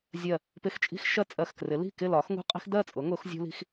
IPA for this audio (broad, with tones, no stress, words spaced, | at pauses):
zʲɜ˧˩ | pɪ˧˩xt͡ʃʼi̤˦x ʃɜ˦t͡sʼɜ˧˩xkrɪ˩˥ li̤˥˩kɪ˥˩lɒ˩˥x ŋṳ˦qʼi̤˦xdɜ˥˩t͡sʼʊ˩˥ ŋʊ˩˥xzʲṳ˦li̤˦x